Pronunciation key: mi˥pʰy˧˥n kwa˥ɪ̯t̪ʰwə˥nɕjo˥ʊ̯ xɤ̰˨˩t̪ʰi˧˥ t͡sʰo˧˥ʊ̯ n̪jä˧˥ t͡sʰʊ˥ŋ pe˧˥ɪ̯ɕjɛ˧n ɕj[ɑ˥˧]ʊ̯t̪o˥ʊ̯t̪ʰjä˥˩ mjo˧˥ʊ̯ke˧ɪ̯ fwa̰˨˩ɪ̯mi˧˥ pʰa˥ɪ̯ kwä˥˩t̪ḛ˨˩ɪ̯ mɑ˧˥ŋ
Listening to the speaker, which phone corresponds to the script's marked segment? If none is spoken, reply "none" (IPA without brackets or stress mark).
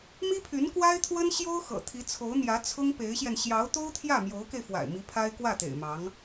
ɑ˧˥